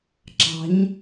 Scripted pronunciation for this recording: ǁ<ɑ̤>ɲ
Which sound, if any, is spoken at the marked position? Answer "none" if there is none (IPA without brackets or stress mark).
ɑ̤